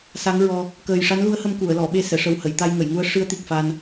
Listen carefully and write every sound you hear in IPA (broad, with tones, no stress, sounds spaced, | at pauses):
s a˧˥ ŋ ɹ ɔ˧ | k əː˨˩ j ʂ a˧˥ n l u˧˥ ə̯ h ə˧ m k u˨˩˨ ə̯ l ɔ˨˩˨ ɓ e˧ s ɛ˨˩˨ ʂ ə˨˩ w h ə˨˩˨ j t̪ a˧ j ŋ ə˨˩˨ j ŋ u˧˥ ə̯ ʂ ɨ˧˥ ə̯ t̪ i˨˩ k̚ f a˧ n